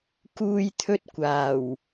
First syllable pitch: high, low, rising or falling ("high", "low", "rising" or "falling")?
high